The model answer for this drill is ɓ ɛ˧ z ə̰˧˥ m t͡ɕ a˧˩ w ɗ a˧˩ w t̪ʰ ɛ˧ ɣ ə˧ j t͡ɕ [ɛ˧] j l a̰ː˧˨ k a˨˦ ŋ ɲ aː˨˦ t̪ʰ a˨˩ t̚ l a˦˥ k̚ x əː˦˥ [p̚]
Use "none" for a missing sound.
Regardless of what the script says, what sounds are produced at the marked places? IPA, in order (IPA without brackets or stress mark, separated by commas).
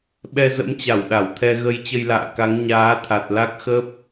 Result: ə˧, p̚